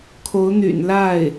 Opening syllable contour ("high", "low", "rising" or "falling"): rising